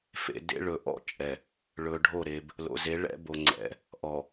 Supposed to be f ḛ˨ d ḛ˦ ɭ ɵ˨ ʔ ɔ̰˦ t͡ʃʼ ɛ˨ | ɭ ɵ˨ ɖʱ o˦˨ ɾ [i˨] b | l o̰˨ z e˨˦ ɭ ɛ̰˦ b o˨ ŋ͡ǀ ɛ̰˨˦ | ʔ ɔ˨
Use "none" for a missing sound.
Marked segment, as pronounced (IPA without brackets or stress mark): e˨